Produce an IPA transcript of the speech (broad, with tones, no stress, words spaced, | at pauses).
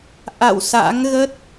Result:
ʔa̰˧˨w sa̰˧˥ŋɣə˦˥t̚